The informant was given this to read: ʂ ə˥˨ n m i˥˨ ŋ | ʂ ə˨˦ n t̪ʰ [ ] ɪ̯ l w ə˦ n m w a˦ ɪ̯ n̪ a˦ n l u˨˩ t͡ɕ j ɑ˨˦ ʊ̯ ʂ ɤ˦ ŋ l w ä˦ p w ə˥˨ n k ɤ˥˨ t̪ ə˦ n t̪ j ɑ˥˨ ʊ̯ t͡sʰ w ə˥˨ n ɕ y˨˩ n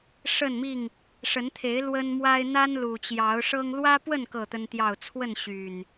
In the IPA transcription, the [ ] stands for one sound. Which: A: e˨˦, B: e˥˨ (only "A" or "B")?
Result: A